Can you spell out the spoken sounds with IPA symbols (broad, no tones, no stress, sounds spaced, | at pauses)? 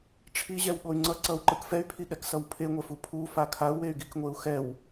ʈ͡ʂʰ i ʑ ɛ w ɠ o y̯ ŋ͡ǀ ʌ ǀ ʌ u̯ ǃ ɯ k f ɛ y̯ pʰ i ɠ ɛ k s ʌ w pʰ e ŋʷ ɛ f u pʰ u f a kʰ a u̯ w e y̯ ɡ i k ŋʷ e u̯ x ɛ w